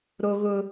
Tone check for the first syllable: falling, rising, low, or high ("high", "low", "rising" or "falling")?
high